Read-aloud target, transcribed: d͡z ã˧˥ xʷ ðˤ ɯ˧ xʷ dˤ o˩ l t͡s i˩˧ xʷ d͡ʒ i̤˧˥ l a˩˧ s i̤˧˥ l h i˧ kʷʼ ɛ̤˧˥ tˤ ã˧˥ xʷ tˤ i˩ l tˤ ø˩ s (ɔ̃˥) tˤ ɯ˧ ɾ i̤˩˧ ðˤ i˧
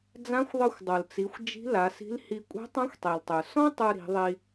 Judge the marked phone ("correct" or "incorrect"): correct